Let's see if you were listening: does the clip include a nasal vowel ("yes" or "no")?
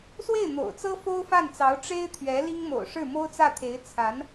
no